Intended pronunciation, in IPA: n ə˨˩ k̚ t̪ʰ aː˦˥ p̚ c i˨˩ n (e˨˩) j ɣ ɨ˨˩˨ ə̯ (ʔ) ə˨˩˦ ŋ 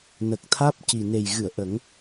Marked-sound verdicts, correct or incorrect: correct, correct

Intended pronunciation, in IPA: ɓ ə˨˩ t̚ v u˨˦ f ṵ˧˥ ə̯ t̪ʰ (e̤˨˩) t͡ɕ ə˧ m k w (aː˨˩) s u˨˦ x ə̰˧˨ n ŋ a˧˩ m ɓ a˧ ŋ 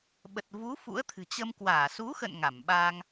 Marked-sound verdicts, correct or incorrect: incorrect, incorrect

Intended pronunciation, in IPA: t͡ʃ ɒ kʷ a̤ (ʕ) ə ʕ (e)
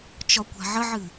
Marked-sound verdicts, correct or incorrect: correct, incorrect

